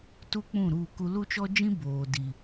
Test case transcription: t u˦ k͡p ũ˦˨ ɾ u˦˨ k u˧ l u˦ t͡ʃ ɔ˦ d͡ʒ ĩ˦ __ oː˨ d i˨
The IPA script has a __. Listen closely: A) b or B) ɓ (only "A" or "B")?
A